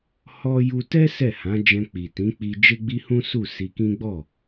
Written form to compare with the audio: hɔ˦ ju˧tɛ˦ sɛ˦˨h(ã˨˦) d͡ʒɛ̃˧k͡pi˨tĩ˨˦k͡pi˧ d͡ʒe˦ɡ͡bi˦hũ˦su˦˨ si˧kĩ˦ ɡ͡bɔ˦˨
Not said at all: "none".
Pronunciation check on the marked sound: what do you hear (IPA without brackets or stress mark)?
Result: ã˨˦